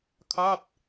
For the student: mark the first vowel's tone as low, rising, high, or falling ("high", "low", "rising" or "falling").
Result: falling